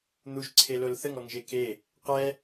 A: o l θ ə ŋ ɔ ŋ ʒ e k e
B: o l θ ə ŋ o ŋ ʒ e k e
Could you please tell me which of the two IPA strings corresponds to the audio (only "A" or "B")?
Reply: A